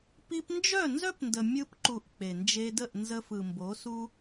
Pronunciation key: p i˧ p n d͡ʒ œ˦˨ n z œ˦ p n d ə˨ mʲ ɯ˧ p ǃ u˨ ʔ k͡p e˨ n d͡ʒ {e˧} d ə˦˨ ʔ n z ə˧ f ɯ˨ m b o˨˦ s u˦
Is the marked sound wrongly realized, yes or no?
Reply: no